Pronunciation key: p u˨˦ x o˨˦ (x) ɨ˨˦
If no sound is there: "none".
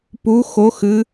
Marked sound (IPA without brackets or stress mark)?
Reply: x